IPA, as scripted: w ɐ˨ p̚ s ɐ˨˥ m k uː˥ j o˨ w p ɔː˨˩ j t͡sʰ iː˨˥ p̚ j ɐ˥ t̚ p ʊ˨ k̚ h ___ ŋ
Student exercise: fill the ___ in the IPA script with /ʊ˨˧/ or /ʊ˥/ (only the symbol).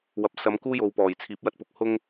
ʊ˥